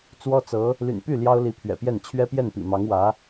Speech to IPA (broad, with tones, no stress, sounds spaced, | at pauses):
t͡s w ɔ˥ t͡s ɤ˧˥ | l y̰˨˩ n p y˥˩ l j ɑ˥ ʊ̯ l i˧˥ pʰ ɥ ɛ̰˨˩ p j ɛ˥˩ n t͡ɕʰ ɥ ɛ˥ p j ɛ˥˩ n p ḭ˨˩ m ɑ˧˥ ŋ w ä˧˥